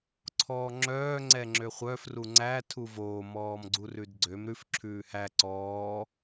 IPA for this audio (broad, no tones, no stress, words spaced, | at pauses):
ǀʰɔːŋ͡ǁœː ŋ͡ǀɛŋ͡ǁøχʷœf ruŋ͡ǀæ tʰuvoː mɔːmɡ͡ǀurʉdɡ͡ǀøm ɾʉf ǁʰʉːhæ ǀɔː